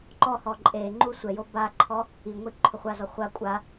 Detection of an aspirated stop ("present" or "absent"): present